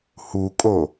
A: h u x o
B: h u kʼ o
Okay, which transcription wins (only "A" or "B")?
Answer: B